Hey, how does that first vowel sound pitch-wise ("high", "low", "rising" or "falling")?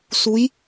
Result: rising